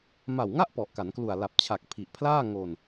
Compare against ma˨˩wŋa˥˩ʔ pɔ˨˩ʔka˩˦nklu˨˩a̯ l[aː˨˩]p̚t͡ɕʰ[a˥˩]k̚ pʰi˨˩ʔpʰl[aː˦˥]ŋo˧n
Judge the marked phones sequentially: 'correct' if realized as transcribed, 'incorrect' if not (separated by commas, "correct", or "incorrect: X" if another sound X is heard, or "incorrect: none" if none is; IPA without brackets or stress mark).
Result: incorrect: a˨˩, incorrect: a˨˩, incorrect: aː˥˩